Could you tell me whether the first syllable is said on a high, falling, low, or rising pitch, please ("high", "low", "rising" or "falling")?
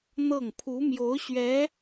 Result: falling